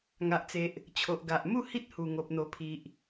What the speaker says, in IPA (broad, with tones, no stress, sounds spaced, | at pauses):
ŋ a˨ ʔ t͡s e˨ ʔ | t͡ɕʰ o˨ ʔ ɡ a˨ ʔ m u˥˧ h i˦ t̚ h u˨˩ ŋ o˨ p̚ n̪ o˨˩ pʰ i˨ ʔ